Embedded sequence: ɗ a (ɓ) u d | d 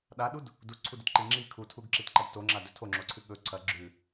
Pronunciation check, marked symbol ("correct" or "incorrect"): incorrect